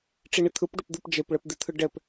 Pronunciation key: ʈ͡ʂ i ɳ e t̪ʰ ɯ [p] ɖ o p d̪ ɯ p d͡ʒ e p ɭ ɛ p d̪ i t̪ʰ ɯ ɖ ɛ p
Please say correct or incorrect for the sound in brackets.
correct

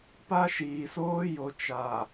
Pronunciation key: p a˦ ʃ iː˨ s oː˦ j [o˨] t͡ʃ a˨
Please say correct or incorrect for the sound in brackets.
correct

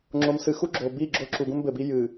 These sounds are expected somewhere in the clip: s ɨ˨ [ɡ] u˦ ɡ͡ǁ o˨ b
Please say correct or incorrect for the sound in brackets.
incorrect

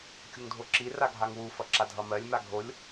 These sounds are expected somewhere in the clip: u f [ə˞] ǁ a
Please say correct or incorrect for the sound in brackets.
incorrect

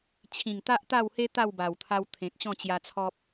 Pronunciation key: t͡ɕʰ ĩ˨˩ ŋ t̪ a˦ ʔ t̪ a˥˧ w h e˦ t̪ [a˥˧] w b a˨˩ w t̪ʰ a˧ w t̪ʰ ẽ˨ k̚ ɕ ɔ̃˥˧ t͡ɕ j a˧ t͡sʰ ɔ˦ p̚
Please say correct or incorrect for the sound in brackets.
correct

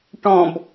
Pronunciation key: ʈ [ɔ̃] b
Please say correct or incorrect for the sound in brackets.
correct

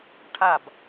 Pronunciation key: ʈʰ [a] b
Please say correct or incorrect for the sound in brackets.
correct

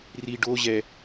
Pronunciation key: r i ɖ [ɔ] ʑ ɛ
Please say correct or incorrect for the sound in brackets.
incorrect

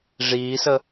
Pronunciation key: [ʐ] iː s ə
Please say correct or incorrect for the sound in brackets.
correct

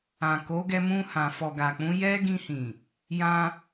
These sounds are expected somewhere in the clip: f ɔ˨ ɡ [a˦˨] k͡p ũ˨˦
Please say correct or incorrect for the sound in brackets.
incorrect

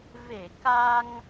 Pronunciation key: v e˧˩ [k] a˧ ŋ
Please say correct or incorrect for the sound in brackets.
correct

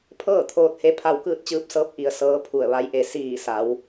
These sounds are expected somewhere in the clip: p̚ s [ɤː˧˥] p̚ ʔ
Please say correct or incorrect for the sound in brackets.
correct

